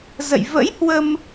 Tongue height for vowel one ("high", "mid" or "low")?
mid